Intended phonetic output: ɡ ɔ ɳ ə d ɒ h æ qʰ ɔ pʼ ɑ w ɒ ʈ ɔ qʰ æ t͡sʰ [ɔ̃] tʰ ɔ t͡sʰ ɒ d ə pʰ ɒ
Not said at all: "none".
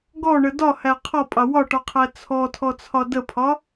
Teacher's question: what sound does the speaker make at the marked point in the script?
ɔ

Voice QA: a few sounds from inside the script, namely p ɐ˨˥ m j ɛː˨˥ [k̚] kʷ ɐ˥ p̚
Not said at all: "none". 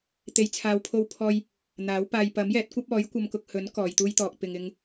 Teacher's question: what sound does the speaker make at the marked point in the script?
t̚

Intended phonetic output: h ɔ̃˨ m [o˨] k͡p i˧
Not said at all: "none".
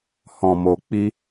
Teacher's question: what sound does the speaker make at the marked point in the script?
o˨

